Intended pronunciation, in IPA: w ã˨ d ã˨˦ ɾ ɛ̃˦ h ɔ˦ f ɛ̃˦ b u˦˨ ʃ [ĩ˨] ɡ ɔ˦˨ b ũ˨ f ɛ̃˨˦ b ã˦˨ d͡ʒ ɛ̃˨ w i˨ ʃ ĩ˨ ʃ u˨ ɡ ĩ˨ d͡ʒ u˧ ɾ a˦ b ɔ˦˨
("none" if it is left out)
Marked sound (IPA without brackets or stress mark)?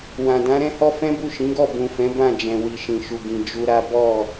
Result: ĩ˨˦